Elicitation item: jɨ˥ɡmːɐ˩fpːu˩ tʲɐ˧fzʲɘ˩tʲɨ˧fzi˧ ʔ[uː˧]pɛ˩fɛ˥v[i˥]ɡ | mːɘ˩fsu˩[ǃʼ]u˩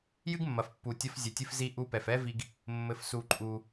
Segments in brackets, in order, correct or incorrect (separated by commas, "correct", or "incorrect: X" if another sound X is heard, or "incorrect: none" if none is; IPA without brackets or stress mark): incorrect: u˧, incorrect: i˧, correct